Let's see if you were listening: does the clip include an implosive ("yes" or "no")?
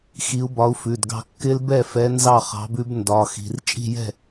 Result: no